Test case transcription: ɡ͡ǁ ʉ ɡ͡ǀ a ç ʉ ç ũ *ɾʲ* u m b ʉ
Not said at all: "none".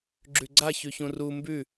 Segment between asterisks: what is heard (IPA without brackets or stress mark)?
r